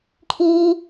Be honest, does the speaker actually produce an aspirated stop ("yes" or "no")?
yes